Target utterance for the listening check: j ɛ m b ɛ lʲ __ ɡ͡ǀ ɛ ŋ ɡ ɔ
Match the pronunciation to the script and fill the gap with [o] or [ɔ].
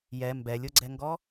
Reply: o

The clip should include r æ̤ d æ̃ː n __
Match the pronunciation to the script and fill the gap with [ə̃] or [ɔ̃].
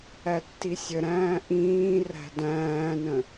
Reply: ə̃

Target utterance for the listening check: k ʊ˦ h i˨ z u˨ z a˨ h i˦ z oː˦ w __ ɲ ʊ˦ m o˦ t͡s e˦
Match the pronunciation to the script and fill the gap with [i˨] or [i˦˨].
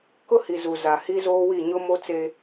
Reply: i˦˨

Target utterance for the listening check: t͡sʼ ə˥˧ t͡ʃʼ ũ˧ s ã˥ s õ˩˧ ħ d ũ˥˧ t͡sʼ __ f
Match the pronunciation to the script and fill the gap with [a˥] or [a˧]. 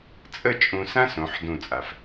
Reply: a˧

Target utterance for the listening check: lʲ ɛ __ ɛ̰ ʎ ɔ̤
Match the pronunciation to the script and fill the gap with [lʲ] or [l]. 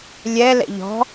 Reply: l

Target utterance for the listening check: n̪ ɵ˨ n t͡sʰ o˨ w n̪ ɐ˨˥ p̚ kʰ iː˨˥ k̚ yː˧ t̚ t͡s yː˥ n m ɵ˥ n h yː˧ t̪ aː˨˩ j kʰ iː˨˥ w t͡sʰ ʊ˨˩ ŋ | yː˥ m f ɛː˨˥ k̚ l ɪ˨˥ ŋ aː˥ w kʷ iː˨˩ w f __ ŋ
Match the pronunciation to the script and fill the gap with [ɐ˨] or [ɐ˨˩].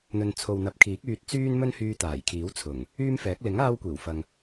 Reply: ɐ˨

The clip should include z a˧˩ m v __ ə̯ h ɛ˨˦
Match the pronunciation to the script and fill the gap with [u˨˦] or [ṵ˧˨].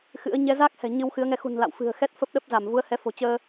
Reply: u˨˦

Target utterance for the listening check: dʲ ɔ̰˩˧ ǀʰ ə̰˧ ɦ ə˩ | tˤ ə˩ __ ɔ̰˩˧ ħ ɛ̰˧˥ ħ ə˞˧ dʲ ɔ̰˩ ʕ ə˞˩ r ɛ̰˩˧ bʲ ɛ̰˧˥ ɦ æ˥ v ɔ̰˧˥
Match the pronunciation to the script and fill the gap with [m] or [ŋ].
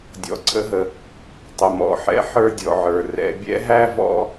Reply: m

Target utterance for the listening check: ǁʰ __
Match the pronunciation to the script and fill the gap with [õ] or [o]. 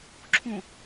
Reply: õ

